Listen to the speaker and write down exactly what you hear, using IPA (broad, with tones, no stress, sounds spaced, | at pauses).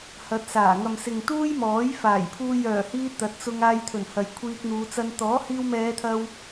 h ɐ˨˥ t̚ s aː˨˩ ŋ ɐ˨ m s ɪ˨ ŋ t̪ uː˥ j m ɔː˨˥ j f aː˨˩ j pʰ uː˧ j œː˨˩ h iː˧ t̪ ɐ˨˥ t̚ t͡s ʊ˧ ŋ aː˧ j t̪ʰ ɵ˨˩ n h ɐ˨ j kʷʰ iː˧ k̚ n̪ uː˨˧ t͡s ɐ˧ n t̪ ɔː˨˥ h iː˧ w m ɛː˨˧ t̪ʰ ɐ˧ w